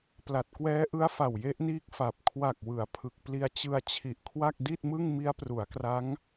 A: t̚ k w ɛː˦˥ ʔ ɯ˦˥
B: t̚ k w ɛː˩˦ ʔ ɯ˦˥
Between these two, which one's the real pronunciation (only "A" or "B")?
A